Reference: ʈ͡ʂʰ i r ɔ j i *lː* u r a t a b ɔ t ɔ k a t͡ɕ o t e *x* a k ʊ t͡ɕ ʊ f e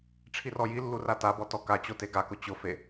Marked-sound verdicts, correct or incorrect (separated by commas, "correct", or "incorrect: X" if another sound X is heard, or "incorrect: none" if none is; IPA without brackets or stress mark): correct, incorrect: ɡ